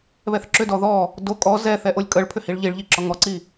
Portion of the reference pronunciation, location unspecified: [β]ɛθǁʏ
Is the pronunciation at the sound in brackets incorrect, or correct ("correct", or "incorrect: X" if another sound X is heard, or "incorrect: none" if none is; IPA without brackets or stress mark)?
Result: correct